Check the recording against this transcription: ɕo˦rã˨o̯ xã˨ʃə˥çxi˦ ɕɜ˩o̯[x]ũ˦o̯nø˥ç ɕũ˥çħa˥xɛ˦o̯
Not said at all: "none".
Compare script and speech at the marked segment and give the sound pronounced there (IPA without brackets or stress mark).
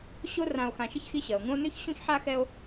ŋ